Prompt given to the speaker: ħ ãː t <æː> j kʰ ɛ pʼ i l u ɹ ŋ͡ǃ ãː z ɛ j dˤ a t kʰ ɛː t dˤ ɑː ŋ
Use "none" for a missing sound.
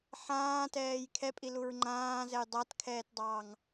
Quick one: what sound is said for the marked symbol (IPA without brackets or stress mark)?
ɛː